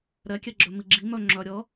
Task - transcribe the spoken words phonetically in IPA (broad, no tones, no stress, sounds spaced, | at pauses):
ɾ ɛ kʲ ɛ ɡ͡ǁ œ m i ɡ͡ǁ i m œ ŋ͡ǁ œ ɾʲ ʌ